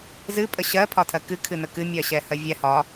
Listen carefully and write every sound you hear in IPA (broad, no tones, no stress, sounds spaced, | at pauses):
z ɨ pʼ ə ɕ ɜ pʰ ɒ tʰ ɜ k ɨ kʰ ɨ n ə k ɨ mʲ ɜ ɕ ɛ h ɜ vʲ ɛ h ɒ